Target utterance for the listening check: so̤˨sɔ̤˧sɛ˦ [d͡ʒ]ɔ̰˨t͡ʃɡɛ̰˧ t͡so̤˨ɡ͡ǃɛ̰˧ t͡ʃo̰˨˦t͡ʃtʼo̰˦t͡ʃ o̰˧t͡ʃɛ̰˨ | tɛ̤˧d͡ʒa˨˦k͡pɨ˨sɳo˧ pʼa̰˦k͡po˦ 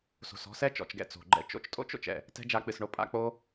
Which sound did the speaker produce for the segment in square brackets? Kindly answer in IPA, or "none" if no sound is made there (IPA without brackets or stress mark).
t͡ʃ